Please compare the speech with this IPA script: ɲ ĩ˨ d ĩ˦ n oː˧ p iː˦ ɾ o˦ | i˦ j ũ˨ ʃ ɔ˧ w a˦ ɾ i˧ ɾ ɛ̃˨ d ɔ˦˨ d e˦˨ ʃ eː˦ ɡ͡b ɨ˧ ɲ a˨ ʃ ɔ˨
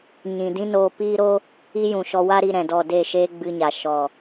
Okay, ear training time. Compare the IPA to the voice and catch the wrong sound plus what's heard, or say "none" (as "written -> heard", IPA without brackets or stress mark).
none